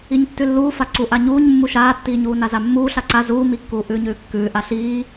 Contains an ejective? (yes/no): no